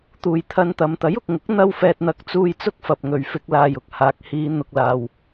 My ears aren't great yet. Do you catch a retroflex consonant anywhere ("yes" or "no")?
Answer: no